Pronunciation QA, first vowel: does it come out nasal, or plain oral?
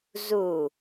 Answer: oral